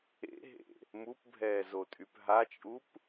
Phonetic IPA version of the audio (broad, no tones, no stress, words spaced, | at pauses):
ḛɦḛ | mupbʱɛːzotʼyp ɦat͡ʃʼup